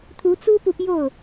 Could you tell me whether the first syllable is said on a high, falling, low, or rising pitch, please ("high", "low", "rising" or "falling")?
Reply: rising